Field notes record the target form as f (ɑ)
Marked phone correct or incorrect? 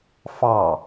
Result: correct